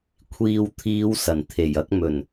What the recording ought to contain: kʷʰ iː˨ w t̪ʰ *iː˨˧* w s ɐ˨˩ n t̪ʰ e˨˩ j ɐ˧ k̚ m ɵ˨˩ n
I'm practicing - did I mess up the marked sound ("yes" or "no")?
no